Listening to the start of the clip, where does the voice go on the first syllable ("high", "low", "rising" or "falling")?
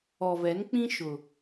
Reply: low